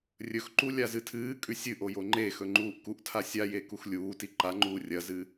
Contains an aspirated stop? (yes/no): yes